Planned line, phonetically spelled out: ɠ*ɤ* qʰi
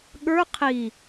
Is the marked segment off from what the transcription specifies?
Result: yes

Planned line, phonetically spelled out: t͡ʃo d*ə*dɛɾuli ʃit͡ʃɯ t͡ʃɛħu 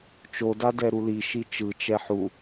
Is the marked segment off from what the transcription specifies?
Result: yes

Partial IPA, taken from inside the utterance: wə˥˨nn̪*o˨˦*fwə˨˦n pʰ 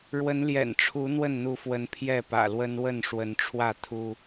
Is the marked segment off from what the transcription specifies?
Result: yes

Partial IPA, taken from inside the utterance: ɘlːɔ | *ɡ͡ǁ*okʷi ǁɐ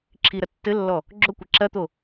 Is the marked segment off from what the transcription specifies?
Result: no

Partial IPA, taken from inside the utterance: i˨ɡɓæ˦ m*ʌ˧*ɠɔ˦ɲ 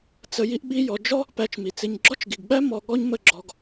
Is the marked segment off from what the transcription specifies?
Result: yes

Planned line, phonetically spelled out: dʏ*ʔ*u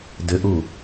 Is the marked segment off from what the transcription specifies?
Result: no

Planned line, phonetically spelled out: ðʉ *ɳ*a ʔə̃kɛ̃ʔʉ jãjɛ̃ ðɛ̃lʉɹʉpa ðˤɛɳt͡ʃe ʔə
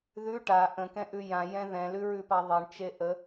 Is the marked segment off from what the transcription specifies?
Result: yes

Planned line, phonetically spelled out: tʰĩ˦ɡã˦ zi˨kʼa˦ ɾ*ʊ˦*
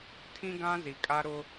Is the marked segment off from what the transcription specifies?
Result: no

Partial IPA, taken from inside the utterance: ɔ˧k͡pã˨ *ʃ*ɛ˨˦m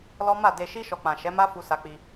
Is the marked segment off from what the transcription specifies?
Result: no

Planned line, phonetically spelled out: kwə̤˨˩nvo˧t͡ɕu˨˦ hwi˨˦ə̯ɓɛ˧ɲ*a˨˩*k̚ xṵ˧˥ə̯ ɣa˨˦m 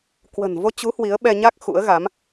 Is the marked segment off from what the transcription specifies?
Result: yes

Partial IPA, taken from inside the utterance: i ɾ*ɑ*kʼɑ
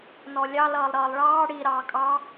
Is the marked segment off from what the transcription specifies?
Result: yes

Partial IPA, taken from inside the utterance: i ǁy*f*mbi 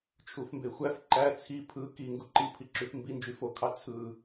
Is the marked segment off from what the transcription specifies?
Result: no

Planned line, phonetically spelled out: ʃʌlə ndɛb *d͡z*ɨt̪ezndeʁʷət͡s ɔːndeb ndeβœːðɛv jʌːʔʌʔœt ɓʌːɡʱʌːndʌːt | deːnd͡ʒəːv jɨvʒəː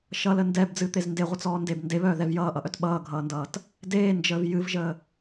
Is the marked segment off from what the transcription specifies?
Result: no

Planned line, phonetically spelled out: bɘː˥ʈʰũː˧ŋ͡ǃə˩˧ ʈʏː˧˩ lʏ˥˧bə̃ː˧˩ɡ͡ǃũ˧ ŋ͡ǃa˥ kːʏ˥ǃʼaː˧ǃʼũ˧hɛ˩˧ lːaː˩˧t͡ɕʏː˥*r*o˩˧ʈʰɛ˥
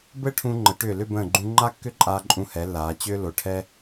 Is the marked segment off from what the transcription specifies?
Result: yes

